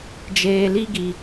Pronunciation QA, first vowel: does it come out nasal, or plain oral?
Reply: oral